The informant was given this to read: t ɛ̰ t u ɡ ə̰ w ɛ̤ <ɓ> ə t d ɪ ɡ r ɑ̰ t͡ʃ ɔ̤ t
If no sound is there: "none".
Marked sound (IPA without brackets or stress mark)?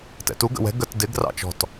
ɡ